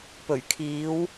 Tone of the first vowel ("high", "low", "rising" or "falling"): low